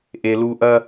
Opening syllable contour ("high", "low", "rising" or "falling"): low